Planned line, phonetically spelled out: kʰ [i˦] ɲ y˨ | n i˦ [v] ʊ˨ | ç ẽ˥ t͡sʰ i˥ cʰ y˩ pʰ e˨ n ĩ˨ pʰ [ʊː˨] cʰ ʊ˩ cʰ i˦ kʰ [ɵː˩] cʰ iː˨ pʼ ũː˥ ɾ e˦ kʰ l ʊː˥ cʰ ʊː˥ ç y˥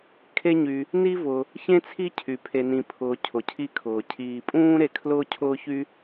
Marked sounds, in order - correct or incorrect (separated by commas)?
incorrect, correct, correct, incorrect